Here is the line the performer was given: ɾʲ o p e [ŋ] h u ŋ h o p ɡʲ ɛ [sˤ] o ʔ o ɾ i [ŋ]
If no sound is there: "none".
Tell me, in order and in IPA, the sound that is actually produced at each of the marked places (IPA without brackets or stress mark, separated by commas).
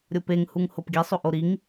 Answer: ŋ, sˤ, ŋ